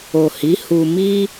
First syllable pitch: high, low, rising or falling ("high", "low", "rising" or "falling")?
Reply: low